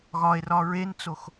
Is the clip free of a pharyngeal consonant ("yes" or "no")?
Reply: yes